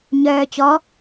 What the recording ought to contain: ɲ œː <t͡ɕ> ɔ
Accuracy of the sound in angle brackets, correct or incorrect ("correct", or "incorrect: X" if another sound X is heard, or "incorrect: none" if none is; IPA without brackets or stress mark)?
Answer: correct